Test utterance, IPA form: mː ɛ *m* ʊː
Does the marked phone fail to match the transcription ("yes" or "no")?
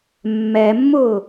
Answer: yes